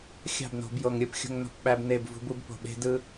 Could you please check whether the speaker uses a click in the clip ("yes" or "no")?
no